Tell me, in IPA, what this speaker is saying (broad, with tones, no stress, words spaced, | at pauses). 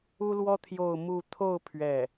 u˥lwɔ˥ t̪ʰjo˥˧ʊ̯ mu˥˧ t̪ʰo˥˧ʊ̯ pʰɥɛ˥˩